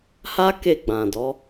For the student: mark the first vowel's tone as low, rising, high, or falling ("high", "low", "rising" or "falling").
high